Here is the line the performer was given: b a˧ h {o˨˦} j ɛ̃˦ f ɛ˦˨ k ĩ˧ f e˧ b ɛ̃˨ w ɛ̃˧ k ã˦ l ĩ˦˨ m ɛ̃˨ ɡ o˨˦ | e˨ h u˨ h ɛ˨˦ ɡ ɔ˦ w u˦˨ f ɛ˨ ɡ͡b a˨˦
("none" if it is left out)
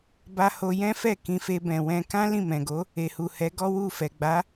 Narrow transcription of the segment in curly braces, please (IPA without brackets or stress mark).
o˧